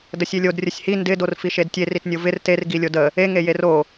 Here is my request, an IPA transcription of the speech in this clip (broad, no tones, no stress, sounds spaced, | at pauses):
d ə sʲ e lʲ o d rʲ ə sʲ h i n d ɪ d o r f i ʃ e d tʲ e r i t nʲ o v ɪ r t e r ɡ i lʲ o d ə | e ŋ e j e r o